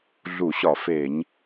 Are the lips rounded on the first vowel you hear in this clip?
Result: yes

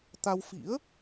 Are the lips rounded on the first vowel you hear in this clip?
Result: no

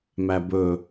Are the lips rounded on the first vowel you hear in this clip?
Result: no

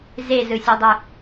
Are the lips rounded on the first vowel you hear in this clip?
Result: no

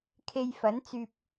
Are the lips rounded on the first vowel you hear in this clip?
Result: no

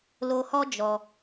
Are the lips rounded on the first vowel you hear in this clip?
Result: yes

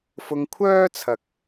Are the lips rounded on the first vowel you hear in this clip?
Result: yes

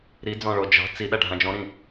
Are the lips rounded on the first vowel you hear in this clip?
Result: no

